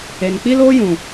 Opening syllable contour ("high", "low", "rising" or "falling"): low